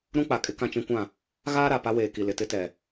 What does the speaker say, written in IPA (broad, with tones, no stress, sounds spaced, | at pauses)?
ɾ ũ˦ k͡p a˨ kʼ ɪ˦ k ã˦ t͡ʃ ĩ˦ kʷ ã˦˨ | ɣ aː˦ ɾ a˨ p a˦ w eː˨ k i˨ l ɪ˨ t ɪ˦ t ɛ˨